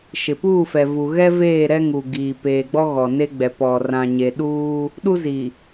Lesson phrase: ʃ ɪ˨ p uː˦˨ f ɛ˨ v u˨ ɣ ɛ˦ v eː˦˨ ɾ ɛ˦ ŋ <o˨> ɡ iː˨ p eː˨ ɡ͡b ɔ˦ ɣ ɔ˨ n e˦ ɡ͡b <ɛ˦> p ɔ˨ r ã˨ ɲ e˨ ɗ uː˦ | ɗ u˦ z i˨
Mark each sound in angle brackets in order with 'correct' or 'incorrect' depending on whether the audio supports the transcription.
incorrect, incorrect

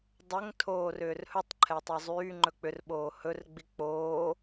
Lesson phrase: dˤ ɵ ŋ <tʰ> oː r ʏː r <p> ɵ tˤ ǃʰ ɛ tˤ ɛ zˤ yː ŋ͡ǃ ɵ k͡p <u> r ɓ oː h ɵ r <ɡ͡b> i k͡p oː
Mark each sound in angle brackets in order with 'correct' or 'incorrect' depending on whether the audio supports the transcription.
correct, incorrect, incorrect, correct

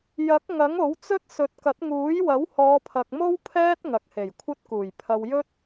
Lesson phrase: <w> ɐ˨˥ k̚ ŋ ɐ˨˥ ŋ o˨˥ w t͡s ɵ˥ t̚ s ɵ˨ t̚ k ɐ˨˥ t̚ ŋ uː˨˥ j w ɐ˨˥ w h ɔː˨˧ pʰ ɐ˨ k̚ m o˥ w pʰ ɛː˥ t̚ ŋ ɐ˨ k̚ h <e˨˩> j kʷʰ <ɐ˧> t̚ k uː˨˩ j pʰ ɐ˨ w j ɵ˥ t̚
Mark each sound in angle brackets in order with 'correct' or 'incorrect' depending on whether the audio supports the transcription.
incorrect, correct, incorrect

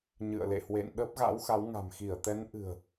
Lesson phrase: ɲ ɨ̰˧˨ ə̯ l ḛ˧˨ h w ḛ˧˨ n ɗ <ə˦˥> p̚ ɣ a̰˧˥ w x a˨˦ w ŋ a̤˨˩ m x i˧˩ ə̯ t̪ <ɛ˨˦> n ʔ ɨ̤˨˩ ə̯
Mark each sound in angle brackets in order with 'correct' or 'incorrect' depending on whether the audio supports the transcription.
correct, correct

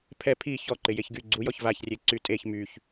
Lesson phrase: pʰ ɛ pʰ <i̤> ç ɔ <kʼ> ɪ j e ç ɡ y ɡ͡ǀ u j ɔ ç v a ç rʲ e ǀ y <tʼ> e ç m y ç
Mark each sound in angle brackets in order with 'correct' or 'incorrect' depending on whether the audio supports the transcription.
incorrect, incorrect, correct

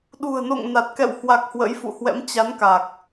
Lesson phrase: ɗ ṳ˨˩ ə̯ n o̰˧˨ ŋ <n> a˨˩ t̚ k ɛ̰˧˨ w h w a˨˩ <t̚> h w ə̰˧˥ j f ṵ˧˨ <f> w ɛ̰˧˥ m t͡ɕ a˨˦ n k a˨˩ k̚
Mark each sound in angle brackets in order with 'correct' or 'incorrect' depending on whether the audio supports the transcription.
correct, incorrect, incorrect

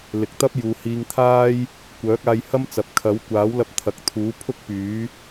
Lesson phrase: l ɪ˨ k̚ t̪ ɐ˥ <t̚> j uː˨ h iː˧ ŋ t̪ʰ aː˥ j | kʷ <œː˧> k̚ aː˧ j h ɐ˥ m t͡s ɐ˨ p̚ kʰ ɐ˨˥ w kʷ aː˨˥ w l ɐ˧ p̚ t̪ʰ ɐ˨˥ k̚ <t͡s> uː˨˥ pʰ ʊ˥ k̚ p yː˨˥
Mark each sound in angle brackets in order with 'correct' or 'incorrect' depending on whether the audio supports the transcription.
incorrect, incorrect, incorrect

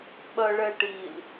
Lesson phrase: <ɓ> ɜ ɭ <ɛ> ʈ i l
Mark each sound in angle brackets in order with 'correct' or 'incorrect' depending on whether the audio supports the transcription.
correct, correct

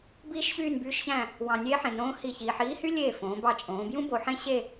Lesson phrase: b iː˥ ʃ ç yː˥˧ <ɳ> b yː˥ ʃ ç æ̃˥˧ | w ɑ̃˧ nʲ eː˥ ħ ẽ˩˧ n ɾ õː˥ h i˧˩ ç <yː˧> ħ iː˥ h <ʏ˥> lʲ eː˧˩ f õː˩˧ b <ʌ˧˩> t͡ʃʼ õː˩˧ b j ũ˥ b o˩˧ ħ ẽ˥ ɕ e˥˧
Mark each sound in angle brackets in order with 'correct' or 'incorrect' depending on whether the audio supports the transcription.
incorrect, incorrect, incorrect, incorrect

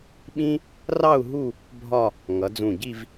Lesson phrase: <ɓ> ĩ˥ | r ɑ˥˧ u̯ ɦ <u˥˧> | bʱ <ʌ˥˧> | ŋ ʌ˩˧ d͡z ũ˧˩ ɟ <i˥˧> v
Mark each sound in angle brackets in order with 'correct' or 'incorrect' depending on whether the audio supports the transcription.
correct, correct, incorrect, correct

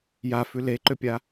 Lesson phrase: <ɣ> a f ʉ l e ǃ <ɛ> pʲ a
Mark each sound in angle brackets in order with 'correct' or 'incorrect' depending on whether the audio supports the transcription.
incorrect, incorrect

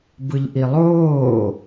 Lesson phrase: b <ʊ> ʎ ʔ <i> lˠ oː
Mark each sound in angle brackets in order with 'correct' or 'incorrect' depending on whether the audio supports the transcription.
incorrect, correct

